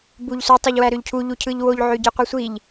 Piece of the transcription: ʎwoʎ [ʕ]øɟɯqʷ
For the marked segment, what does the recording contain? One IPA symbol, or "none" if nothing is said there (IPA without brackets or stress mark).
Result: ʕ